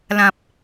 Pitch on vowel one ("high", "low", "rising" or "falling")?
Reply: low